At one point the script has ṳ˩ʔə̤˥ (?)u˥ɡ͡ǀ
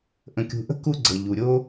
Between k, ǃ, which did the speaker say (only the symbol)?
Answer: k